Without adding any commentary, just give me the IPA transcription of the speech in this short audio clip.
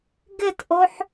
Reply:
ɡ ɪ t ʔ o ħ

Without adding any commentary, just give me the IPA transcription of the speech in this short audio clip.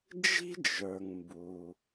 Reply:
d͡ʒ i̤˦ d͡ʒ ə˞˩ ŋ m b u˩

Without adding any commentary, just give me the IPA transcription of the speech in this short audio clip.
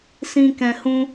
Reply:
s ĩ˦ k ɛ̃˧ h ũ˦

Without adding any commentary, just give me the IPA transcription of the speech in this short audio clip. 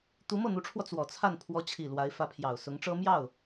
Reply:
t̪ u˧˥ m ɤ˥˩ n̪ u˧˥ ʈ͡ʂʰ w ɔ˧ t͡s w ɔ˨˩ t͡sʰ a˥˩ n pʰ w ɔ˧˥ t͡ɕʰ i˨˩ l w a˧˥ ɪ̯ f ä˧˥ pʰ j ɑ˨˩ ʊ̯ s ʊ˧˥ ŋ ʈ͡ʂ ɤ˥ m j ɑ˥˩ ʊ̯

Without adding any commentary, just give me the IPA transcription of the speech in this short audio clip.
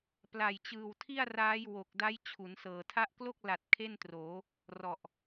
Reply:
p l a˨˩ j t͡ɕ ɯː˨˩ w tʰ i˥˩ a̯ r aː˦˥ j w o˨˩ k̚ d a˦˥ j t͡ɕʰ u˩˦ n s ɤː˨˩ tʰ a˦˥ ʔ k l o˥˩ k̚ l a˨˩ t̚ kʰ e˥˩ n t r oː˩˦ | r ɔ˨˩ ʔ

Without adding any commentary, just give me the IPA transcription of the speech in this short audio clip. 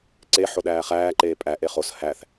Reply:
ǀ e ħ o ɗ æː χ æː ǃ eː pʼ æ ʔ e χ o s h æ θ

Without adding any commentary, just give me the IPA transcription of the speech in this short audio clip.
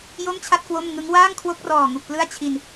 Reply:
j o˥˩ m t͡ɕʰ a˥˩ t̚ k w o˥˩ m ŋ ɯ˦˥ ŋ w aː˥˩ ŋ kʰ w o˦˥ k̚ r ɔː˨˩ ŋ u˨˩ k̚ p l ɯ˥˩ a̯ t͡ɕʰ i˧ n

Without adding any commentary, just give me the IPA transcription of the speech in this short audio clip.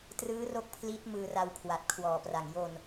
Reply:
t r ɯː˦˥ r o˦˥ k̚ pʰ l iː˦˥ t̚ m ɯː˧ r a˧ w kʰ w a˨˩ t̚ kʰ w ɔː˨˩ p r a˨˩ ŋ j o˧ n

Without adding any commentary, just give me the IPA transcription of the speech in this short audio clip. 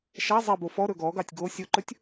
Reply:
ʃ a zˤ ɛ b o f ɔ ɾ ɵ ɡ ɔ ɡ ɑ tʲ ɡ o sʲ o ǃ ɵ tʲ

